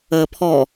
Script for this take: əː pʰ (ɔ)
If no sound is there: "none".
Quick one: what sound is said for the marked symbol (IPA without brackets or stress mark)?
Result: ɔ